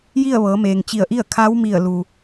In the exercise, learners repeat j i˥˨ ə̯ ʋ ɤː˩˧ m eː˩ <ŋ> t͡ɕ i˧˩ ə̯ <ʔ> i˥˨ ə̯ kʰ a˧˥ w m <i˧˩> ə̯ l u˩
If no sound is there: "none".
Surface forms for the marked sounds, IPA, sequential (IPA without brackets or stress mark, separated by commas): ŋ, ʔ, i˧˩